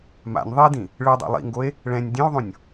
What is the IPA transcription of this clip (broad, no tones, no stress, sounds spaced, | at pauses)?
m a̰ nʲ ðˤ i d ĩ | ɭ ɯ dˤ a̰ lˠ ḭ ŋ ɡ o e̯ | ɭ ɛ̃ nʲ dʲ ẽ o̯ ðˤ õ nʲ